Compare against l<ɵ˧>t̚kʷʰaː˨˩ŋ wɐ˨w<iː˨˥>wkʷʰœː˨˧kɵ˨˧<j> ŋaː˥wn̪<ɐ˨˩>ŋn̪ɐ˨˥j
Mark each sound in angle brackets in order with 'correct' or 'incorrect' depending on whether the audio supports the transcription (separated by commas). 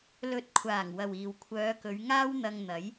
incorrect, incorrect, incorrect, incorrect